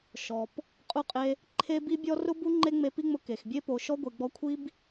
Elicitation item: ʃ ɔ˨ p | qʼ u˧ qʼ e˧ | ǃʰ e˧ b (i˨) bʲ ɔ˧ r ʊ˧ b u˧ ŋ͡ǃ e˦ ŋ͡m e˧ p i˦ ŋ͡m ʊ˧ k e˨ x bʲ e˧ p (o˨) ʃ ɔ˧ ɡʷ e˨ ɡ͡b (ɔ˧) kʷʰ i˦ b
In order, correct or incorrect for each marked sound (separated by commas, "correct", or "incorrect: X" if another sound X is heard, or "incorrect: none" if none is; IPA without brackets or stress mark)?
incorrect: i˧, correct, correct